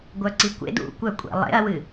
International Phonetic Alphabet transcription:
ɡʷœǀikʷḛd ṵkʷœkʷʼḛ lˠḛɐ̯wɨ

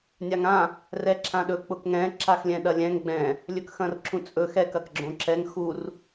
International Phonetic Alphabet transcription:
nʲaŋã | rɛǁʰãɗɵ k͡pʊkŋɛ̃ ǁaxlʲɛ̃ɗɐlʲɛ̃ŋ ɡ͡bɛ̃ | lʲɵkxɐ̃rǁũt͡sʼɵ xɛk ɐkɡ͡ǁõǁɛŋ xur

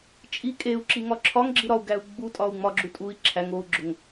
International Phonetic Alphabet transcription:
t͡ʃʼi kʼeu̯ ǁiŋɒǁʰɒŋɡ͡ǁi ɾɒu̯ɡæu̯ ɡ͡butʼɒu̯ ŋ͡mɒɡ͡ǁu tʼui̯ ǁʰæŋ ou̯ɡ͡ǁoŋ

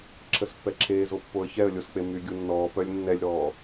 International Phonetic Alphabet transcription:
ǁʰəspːɛǁʰeːzo pːoə̯çɛə̯lʲosk͡pe myɡʲunːɔː pœlʲnːɛlʲɾɔː

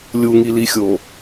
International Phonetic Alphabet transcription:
lʲuŋilixʲo

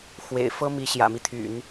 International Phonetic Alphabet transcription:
xwḛ˨˩ɪ̯ fɤ˥ mi˧˥ɕjä̰˨˩mi˦t̪ʰy̰˨˩˦n

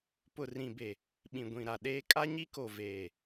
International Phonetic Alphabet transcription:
pʊ˨rĩ˨be˨ | ɓĩ˨ɡʷĩ˨ɾa˨ ɗeː˦ kʼa˦ɲi˦ko˨ veː˨

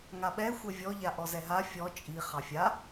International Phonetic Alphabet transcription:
ŋaɓɛ xʷɛvʲɔ ʎaʔɔzɛɦa fʲɔ t͡ʃʼi χɑfʲa

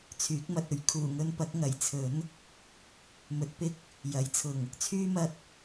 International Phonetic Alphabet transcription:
t͡sʰyː˨˥k̚mɐ˨t̚ɵ˨˧ɥ kʰuː˨˩ŋɵ˧npɐ˨˥k̚ ŋɐ˨˩jt͡sʰɵ˨˥n | mɵ˨˥t̚pɪ˨k̚ | jɐ˨˥jt͡sʰʊ˨˩ŋ | t͡sʰyː˥mɐ˧t̚

